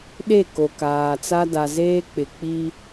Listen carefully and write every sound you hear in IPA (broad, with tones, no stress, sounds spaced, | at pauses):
ɗ e˦˨ k o˨ k aː˨ t͡s a˦ d a˨ z eː˦ k͡p ɪ˨ k͡p i˦